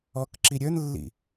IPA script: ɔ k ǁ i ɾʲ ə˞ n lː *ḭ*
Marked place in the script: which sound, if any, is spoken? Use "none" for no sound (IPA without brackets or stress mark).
ḭ